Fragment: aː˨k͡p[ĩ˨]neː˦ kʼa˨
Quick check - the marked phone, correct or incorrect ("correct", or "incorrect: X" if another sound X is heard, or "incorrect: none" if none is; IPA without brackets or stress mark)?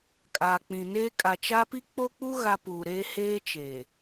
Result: correct